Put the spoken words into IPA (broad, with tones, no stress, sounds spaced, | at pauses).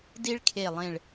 d i˥ ɭ kʰ e˧˩ lˠ ẽ˧˩ ɭ